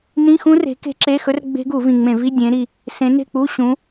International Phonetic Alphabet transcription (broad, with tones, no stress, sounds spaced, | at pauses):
n ĩ˧˥˧ x ũ˦˥ r e̤˨˦ k e̤˦˥ ǁ e˧˥˧ x ɵ˦˥ r ɡ͡b e̤˦˥ ɡ u˧˩˧ v ĩ˨˩ ŋ͡m ẽ˧˩˧ v i˧˥˧ dʲ ẽ˨˦ ɾ i˨˩ | s ẽ˨˦ n e̤˥˨ k͡p u˧˥˧ ɕ ũ˨˦